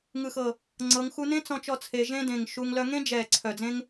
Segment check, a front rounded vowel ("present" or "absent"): present